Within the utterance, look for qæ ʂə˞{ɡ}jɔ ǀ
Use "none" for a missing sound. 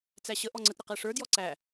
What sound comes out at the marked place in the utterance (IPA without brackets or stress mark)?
d